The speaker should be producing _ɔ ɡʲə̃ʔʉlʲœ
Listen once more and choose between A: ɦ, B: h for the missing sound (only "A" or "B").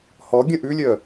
B